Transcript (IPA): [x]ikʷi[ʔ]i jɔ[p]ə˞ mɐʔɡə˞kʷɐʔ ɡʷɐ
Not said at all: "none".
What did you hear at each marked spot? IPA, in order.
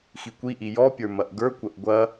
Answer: x, ʔ, pʲ

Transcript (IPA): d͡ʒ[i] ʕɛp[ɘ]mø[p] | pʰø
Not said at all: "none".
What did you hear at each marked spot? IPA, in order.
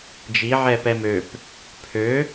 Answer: i, ɛ, p

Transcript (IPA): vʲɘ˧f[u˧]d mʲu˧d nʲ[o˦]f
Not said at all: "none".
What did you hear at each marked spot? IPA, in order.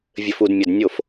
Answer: u˧, o˦˨

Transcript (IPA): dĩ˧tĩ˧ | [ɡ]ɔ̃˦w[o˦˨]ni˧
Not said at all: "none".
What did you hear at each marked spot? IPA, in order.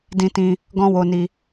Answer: ɡ, o˧

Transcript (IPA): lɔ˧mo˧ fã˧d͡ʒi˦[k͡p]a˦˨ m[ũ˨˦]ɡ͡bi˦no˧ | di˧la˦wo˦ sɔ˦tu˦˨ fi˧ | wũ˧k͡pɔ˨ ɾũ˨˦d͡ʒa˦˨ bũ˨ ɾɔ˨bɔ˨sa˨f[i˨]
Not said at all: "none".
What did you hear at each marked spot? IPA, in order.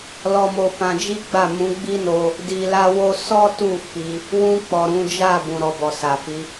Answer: ɡ͡b, ũ˨˦, i˨˦

